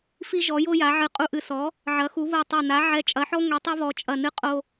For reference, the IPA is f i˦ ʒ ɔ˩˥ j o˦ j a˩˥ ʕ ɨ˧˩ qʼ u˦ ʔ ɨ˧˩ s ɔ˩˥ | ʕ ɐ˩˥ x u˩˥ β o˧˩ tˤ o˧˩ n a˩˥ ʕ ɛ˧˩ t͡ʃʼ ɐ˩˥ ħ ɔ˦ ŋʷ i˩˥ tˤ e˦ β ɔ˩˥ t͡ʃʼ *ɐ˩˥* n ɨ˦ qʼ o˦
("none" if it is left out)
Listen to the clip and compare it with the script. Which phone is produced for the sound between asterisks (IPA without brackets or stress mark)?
ɐ˧˩